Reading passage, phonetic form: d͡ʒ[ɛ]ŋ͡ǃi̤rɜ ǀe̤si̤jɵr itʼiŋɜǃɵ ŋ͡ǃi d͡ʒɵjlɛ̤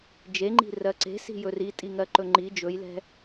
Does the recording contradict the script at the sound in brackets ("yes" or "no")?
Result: yes